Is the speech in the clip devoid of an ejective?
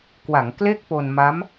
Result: yes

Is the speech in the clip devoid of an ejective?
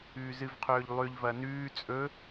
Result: no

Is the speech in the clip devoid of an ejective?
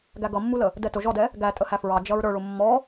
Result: no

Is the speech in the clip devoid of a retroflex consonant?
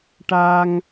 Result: no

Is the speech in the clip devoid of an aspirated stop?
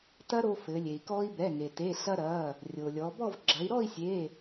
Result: yes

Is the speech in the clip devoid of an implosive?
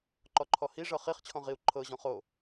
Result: yes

